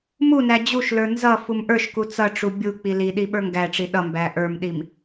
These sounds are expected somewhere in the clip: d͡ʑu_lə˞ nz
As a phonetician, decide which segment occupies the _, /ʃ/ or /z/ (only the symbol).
ʃ